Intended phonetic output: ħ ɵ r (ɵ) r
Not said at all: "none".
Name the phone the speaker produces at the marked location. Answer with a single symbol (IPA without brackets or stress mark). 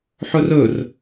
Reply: ɵ